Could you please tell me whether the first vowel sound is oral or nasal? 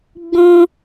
nasal